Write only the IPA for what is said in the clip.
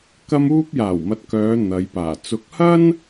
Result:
kɐ˧muː˧p̚jaː˨˩wmɐ˨t̚ kœː˨˧ n̪ɐ˨˧jpaː˨˩ t͡sʊ˨˥k̚hɐ˥n

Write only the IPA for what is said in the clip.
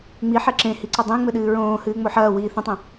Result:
ŋ͡miħɛ ǁẽhiǀɐ dˤĩŋ͡mɘɗɨː ɹõːhɨːŋ͡mo ħɐːwiː θũtˤɛ̃

